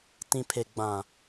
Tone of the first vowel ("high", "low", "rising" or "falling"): low